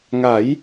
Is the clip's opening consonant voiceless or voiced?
voiced